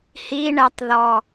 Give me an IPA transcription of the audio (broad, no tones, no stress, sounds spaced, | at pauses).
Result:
h i ɳ ɛ tˤ ð ɔ